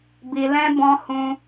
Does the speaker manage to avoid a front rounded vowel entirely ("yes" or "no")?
yes